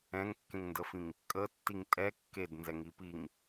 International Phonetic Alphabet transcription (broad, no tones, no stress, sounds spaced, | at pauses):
ɛ̃ ŋ kː ẽ ŋ n d ə f ĩ ŋ | kʼ ə tː i ŋ tʼ ɛ kː e d n z ɛ ŋ i p i ŋ